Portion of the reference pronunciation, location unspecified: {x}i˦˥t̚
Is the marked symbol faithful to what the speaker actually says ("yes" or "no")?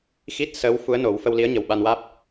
yes